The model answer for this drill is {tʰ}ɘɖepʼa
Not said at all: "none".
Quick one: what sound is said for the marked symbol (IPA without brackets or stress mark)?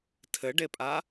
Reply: tʰ